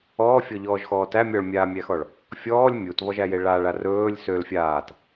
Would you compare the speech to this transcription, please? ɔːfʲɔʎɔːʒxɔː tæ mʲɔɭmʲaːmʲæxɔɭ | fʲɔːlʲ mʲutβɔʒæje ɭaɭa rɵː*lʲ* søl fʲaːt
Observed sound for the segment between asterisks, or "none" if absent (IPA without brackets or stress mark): lʲ